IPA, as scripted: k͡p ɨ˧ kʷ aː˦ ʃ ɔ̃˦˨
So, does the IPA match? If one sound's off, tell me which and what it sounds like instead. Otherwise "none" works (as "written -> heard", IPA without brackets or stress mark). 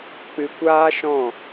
none